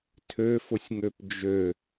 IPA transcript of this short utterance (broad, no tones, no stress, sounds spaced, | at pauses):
tʰ ø f ʊ sʲ ŋ ø p d͡ʒ ø